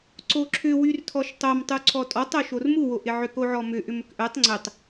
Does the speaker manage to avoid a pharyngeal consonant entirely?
no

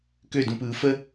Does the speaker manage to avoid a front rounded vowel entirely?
no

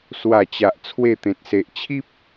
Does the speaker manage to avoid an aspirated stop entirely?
no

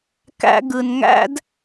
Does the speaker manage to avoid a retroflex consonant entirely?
yes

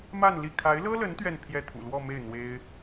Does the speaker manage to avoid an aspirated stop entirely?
no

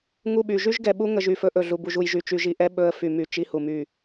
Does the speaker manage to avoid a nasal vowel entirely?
yes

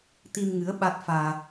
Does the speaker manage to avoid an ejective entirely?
yes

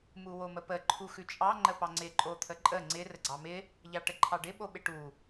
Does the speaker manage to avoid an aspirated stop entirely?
no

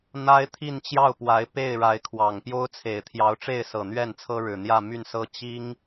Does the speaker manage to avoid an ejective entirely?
yes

